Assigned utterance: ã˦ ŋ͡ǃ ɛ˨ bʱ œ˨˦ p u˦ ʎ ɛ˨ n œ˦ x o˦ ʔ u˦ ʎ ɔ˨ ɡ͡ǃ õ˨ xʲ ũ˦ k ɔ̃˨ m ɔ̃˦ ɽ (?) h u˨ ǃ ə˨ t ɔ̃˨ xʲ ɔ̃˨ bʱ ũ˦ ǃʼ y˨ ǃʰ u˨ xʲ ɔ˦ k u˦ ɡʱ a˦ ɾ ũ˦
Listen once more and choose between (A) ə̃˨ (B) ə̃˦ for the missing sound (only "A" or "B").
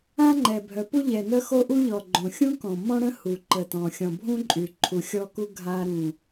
B